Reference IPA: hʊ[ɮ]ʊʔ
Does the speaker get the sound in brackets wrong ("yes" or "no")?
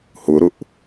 yes